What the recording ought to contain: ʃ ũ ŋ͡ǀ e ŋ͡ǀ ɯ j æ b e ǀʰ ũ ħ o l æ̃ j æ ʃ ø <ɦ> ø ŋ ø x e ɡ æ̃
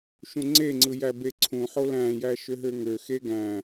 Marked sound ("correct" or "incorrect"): correct